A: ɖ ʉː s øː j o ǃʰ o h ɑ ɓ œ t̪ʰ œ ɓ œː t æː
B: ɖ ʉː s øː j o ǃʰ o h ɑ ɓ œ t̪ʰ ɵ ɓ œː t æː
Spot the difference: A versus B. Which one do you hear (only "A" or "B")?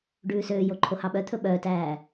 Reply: B